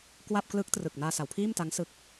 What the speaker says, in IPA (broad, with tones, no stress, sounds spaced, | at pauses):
k w a˥˩ p̚ k l ɯ˦˥ k̚ t r ɯ˨˩ k̚ n aː˧ s a˩˦ w pʰ iː˥˩ m t a˦˥ ŋ s ɯ˦˥ k̚